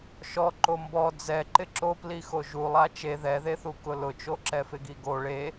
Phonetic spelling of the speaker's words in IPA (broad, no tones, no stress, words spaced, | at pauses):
ʃɔ ǃombɔ d͡zɛǃɪ ǁoplixo ʒulˠa t͡ʃe ðɛðeθu kʊlʊt͡ʃo ǁɛfɪɡiɡo ɭe